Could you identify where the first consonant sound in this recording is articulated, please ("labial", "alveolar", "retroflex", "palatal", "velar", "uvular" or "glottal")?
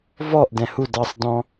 labial